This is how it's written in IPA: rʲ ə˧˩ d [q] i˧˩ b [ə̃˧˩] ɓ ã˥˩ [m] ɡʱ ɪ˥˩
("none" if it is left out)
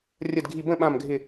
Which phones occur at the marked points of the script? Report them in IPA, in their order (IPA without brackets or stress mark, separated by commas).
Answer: ɡʱ, ə̃˥˩, m